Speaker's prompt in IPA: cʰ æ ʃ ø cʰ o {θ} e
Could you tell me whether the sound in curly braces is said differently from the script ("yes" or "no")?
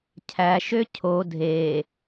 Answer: yes